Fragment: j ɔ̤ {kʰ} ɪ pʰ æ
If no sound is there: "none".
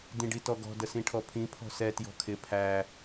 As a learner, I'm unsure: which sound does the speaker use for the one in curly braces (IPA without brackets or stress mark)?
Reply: kʰ